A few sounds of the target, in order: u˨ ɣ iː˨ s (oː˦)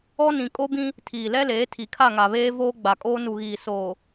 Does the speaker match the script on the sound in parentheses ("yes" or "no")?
no